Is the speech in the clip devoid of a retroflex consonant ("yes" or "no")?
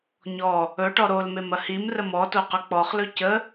no